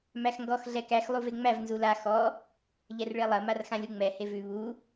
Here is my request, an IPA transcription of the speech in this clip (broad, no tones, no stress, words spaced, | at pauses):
mæxŋɡɔx ɮɛkæx lˠuveŋ͡mæv nzula xɔ | ʎɛrɭelˠɐ marxãlʲuŋ͡mɛ hevʉ βu